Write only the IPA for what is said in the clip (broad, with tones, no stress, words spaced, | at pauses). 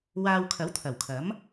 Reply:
waː˧wkʰɐ˨˥wt̪ʰɐ˨˩wkʰɐ˨˥m